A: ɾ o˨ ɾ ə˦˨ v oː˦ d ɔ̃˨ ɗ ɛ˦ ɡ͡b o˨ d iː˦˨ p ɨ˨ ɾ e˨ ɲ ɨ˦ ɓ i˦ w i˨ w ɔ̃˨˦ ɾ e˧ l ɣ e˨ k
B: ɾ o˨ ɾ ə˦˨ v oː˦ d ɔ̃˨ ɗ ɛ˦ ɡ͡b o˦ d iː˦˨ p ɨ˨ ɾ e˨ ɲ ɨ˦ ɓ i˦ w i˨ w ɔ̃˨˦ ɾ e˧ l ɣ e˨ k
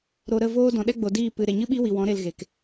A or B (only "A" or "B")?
A